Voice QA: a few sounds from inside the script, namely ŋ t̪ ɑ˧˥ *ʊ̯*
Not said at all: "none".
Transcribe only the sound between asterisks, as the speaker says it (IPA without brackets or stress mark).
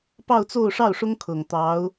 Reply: ʊ̯